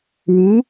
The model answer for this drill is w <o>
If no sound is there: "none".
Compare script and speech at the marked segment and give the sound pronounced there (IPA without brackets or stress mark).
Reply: u